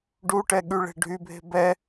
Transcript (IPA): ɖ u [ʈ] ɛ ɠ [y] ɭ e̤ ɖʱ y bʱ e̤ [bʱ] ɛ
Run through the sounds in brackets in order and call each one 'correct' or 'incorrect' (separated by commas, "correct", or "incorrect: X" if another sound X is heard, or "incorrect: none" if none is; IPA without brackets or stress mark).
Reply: correct, correct, incorrect: b